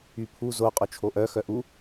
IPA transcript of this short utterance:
y pʰ u z o qʼ o t͡ʃʰ o ʔ œ x œ ʔ u

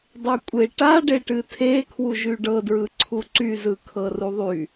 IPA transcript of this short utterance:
dˤ e kʷʼ e ʈ a ɖ e ʈ ɨ tʰ e kʰ w u ʒ y ɖ ɤ d ɹ ɯ ǀʰ u ǀ y z ɯ kʰ ɤ r u ðˤ y

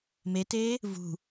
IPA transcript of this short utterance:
m e t eː | v ṳ

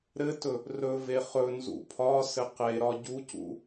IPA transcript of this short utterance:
ɾ ɘ t ɵ | r ɵ v e χ ɵ n z ṵ pʰ ɒ s ɘ q e ɾ ɒ ɟ u c ṵ

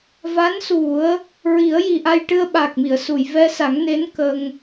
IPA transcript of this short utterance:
v a˧˥ n s u˨˩˦ ə̯ | ɹ i˨˩˦ ə̯ j i˨˩ ʔ a˧ j ʈ ɨ˧ ə̯ ɓ a˨˩ k̚ m i˨˩˨ ə̯ s u˨˩˨ j v ɛ˧ s a˨˩˦ ŋ n e˧˥ n k ə˧ ŋ

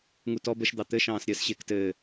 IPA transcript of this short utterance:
ŋ u t ɔ b ə ʃ d̪ ɑ t̪ ɘ ʃ ɑ̃ː s ɾʲ əː s ɕ ɪː k t ɘː

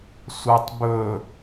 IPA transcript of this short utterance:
sʷ ɑ tˤ b ɵ

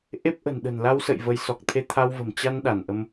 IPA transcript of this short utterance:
ʔ e˦˥ p̚ ʔ ə̤˨˩ n ɗ ə̤˨˩ n l a˧ w s ə̰˧˨ j v ə˨˦ j s ɔ˨˩ k̚ t̪ʰ e˧ t̪ʰ a˧ w v ə̤˨˩ m t͡ɕ a˧ n ɗ a˧˩ n ʔ ə˧ m

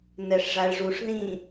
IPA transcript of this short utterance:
n ɛ ʂ ʐ a ɭ ʐ u ʂ ð ĩ

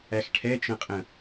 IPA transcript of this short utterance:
æ x ʈʰ ɛ t͡ʃ ə̃ qʼ ə̃

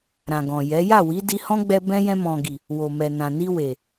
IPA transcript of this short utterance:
ɾ ã˨ ɡ ɔ̃˨ j ɛ˨˦ j a˦˨ w i˨˦ d i˧ h ɔ̃˦ ɡ͡b ɛ˧ b ɛ̃˦ j ɛ̃˧ m ɔ̃˨ ɡ i˨ | w o˨ m ɛ˨ n ã˨ n i˧ w e˨

